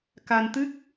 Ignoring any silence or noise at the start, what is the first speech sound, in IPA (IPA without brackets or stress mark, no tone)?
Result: k